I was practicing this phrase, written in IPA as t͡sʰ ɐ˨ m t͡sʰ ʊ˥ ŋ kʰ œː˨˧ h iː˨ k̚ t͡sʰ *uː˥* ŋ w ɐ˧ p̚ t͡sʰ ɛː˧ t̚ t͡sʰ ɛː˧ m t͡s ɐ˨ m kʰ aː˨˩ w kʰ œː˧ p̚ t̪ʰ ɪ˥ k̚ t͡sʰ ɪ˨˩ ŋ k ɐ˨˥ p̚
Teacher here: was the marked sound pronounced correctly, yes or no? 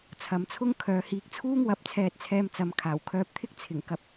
yes